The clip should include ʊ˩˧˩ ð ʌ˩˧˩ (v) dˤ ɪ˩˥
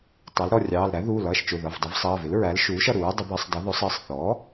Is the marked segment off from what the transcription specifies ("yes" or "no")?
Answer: no